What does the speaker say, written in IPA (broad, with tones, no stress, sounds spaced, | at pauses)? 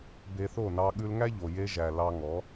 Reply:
b e˧ θ o˦˨ n ɑ˧ ɠ ʉ˧ l ŋ æ˦ ʎ o˨ j e˦ ʒ æ˨ l ɑ˧ ŋ ɔ˨˦